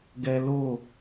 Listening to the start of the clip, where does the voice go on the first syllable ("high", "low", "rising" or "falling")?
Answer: high